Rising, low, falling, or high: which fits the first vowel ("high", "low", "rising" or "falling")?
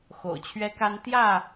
low